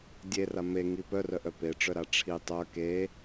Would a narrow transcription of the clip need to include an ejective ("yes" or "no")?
no